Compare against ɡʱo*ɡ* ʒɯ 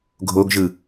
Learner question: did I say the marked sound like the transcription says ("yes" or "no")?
yes